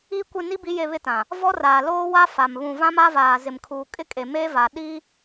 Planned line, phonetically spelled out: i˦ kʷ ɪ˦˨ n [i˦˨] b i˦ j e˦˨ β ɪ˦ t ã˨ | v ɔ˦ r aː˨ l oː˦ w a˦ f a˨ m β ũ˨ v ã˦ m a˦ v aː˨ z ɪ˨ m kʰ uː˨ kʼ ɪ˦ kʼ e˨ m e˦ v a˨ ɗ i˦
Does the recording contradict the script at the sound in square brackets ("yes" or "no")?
yes